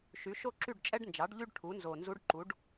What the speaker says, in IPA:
ʃy˩˥ʃo˥ ǁy˥˨ɖt͡ʃʼɛ˥ɖnd͡ʒɑ˩˥ɖ ʎy˥ɖ ʈʰu˩˥nzo˨˩ nzu˧˥ɖǃu˩˥ɖ

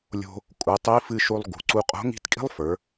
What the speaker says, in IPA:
lʲo̤˧ | kʼu˩˧tˤi˧˥ fɨ˧ʃu˧lˠ ɡṳ˩˧ǀu˧qʼo̤˧˥ ŋi̤˧˥tkʼi̤˥lˠfə˞˩˧

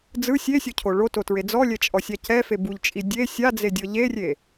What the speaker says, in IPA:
d͡zɯ sʲesʲocʰo ɭototɹe d͡zɔlʲɛt͡ʃʼɔsʲa cɛfe buʎt͡ʃʼi dʲe sʲad͡zedʲɤ ʎerʲe

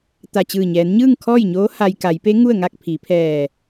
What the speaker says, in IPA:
t̪a˧˩t͡ɕɯː˧˩ɲɛː˩˧nɲɯː˥˨ŋ kʰɔː˥˨jɲoː˧˥ ha˧j ka˩˧jpe˧˥ ŋu˥˨ə̯ŋa˥˨k̚ pʰi˩˧pʰɛː˧˩

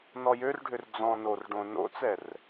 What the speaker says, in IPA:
nɔjørɖʱør d͡zɔ̃ norɖõ no̰t͡sɛr

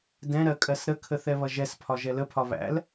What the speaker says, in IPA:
dɛ̃ɾɜ kʼɜsɾəkʰə θɛβʌʒɛspʰɒ ʒɛləpʰɒ βæ̰l

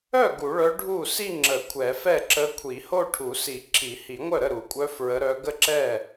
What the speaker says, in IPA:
œ˥˩ ɡu˨˩˦ɭœ˧˥ ɖʱu˥˩ si˥˧ ŋ͡ǁə˨˩˦ kʷʰɛ˨˩˦fɛ˥˩ǁə˧˥ kʷʰi˨˩˦ho˥˧ʈʰu˨˩˦si˨˩˦ ǁʰi˨˩˦hi˨˩˦ŋʷœ˥˩ɾə˥˩ ɾu˨˩˦kʷʼœ˧˥ fɹə˧˥ɾœ˧˥ ɡə˥˩ǁɛ˥˩

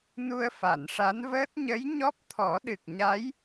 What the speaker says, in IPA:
nu˧ə̯fa˨˩˨nʂa˧˥nvəː˦˥t̚ ɲə˧˥jɲɔ˦˥p̚t̪ʰɔ˨˩˦ɗɨ˨˩k̚ ɲa˧˥j

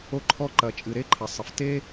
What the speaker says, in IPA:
o˧ǃʰɔ˧ǃɐ˩t͡ʃʼɨ˩ ɾe˥ǃʰɐ˩sˤɘ˩fte˥

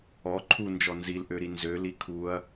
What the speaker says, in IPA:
ɔ ǃʰund͡ʒɔ nzilʔøɾi nzøli kʰuɐ̯

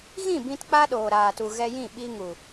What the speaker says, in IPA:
ɣĩ˦˨ bĩ˧t k͡pa˦ɗoː˨ɾaː˨tu˨ ɣɛ˧jĩ˦˨ ɓi˧ŋu˨

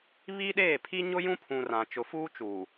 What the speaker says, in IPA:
βi˦ɗeː˦˨pʰi˦ ɲʊ˦jũ˦pʰũ˨ rã˨ t͡ʃʊ˨fuː˦t͡ʃuː˨

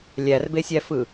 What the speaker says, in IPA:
lʲærbesʲæfɯ

